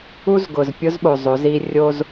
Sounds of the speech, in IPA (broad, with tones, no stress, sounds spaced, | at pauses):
u˦ z ɡ ʊː˨ z pʲ ʊ˦ z ɓ o˨ zˤ o˨˦ z iː˦ rʲ o˦ z